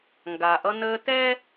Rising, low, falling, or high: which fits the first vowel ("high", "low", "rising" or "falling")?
low